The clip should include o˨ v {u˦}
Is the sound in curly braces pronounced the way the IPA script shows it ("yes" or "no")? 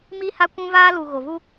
yes